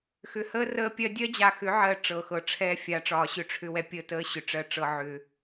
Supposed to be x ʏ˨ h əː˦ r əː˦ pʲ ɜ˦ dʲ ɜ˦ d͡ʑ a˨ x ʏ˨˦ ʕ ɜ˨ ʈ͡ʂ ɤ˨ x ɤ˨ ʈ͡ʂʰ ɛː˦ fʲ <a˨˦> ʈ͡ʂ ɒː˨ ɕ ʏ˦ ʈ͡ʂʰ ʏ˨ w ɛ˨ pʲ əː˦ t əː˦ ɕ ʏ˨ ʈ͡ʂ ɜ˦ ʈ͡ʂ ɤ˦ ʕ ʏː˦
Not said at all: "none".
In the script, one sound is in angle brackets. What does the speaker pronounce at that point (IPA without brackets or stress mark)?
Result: a˨˦